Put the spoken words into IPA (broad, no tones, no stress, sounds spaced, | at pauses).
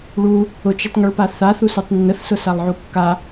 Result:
ɭ u | ʊ t͡ʃ ʊ tˤ ŋ ʊ ɭ p a θ a θ u s u tˤ nː ə θ s ʊ s a lˠ ʕ u kː a